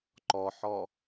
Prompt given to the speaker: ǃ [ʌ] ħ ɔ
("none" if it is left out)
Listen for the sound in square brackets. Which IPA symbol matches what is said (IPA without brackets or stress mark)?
ɔ